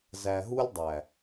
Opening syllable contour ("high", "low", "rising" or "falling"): low